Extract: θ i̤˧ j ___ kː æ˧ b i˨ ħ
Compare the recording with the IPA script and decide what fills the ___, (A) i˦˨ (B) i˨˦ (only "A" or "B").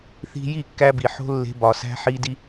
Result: A